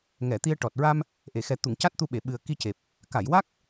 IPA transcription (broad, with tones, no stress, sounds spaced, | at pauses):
ŋ ɛ˨˩˨ t̪ i˧ ə̯ ʈ ɔ˨˩ t̚ ɹ a˧ m | ʔ e˨˩˨ x ɛ˨˩ t̪ u˨˩˨ ŋ c a˦˥ t̚ t̪ u˧ ɓ e˨˩˨ ɓ ɨ˨˩ ə̯ k i˧ c e˨˩ p̚ | k a˨˩˨ j w a˦˥ k̚